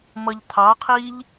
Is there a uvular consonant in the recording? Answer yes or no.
yes